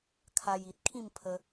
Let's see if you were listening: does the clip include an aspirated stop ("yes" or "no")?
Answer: yes